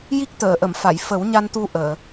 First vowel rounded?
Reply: no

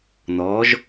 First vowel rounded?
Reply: yes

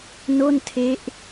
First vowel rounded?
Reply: yes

